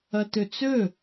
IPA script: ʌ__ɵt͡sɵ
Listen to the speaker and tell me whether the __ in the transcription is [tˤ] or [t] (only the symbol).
t